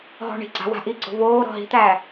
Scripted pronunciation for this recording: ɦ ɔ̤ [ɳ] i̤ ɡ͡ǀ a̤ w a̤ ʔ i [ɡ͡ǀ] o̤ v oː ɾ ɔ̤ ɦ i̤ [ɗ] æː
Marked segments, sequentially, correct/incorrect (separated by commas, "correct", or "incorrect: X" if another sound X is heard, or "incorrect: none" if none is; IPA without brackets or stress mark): correct, correct, incorrect: t̪